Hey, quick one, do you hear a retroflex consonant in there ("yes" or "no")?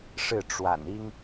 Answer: yes